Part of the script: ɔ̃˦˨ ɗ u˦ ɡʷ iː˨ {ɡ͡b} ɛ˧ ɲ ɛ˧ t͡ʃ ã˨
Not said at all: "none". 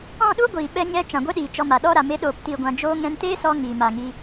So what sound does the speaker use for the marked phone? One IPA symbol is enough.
ɓ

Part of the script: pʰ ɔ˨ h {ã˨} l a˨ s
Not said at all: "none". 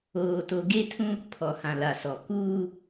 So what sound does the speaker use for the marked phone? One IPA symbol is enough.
ã˨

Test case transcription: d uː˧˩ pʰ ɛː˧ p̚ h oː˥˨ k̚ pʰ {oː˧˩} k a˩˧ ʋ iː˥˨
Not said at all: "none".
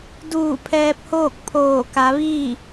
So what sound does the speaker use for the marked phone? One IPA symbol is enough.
oː˧˩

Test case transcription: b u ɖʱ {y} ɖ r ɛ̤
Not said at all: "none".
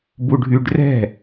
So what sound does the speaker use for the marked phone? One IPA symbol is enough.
y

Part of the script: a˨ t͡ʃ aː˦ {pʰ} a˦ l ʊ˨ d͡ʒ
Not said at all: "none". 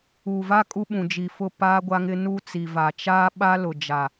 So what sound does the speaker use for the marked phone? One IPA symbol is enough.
ɓ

